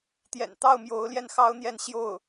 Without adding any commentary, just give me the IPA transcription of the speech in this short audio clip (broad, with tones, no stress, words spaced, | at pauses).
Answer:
t̪jɛ̰˨˩nt̪ɑ˥˩ʊ̯ mjo˧˥ʊ̯ljɛ˥˩nxɑ˥ʊ̯n̪jɛ˥˧n ɕjo˥˩ʊ̯